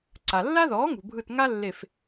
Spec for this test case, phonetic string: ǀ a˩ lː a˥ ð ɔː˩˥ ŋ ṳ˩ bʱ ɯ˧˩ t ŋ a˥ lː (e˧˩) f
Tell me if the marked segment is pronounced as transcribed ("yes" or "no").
yes